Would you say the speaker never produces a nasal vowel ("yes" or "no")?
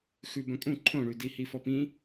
no